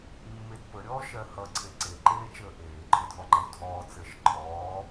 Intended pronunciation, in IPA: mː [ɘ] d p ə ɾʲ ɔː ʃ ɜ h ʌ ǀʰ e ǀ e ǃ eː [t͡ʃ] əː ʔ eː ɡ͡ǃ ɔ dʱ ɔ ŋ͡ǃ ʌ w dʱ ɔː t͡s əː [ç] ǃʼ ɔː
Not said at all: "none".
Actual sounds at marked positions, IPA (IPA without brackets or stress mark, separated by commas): e, t͡ʃ, ʃ